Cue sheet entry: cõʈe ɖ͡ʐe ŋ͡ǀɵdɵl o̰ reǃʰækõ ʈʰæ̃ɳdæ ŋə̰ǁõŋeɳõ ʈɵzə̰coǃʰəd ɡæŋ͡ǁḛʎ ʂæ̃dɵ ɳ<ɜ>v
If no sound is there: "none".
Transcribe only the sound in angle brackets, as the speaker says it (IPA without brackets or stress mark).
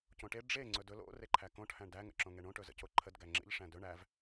æ